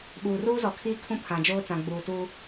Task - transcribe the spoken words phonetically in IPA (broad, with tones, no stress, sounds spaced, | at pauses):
ɓ uː˨ r uː˦ z ɔ˨ kʰ iː˦ kʰ ũ˦ pʰ ã˨ d͡ʒ oː˦ t͡s ã˨ ɡ͡b uː˨ t uː˦